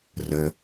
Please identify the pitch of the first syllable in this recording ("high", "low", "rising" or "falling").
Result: low